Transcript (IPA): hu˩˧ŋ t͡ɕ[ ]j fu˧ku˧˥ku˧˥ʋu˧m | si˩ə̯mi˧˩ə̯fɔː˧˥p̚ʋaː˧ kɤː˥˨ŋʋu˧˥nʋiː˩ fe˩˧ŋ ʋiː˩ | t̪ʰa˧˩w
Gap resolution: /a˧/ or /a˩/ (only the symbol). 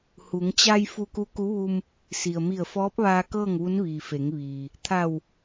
a˧